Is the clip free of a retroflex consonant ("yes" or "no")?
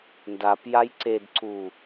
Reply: yes